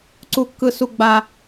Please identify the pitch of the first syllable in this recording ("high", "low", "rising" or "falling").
high